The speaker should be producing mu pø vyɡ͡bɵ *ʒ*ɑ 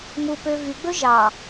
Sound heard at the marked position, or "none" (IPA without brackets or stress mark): ʒ